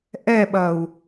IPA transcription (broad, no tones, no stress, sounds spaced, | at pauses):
ʔ ɛ ɓ ɐ u̯